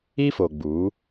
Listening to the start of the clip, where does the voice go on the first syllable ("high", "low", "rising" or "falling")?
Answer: high